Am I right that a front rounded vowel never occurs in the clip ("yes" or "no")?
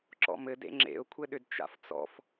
no